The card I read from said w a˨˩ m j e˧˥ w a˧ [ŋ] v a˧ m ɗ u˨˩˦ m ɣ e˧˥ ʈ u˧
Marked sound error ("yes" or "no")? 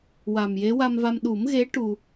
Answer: yes